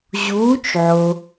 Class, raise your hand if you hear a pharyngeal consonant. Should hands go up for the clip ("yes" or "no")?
yes